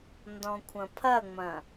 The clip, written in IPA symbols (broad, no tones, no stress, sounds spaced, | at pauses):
n d ɔ̃ kʷʰ ɐ̃ pʰ ɐ ŋ͡m ɐ̃